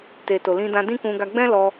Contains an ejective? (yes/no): no